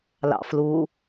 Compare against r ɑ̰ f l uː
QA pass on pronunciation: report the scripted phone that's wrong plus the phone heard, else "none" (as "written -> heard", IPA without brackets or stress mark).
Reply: r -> l